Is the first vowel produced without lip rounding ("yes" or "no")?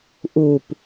no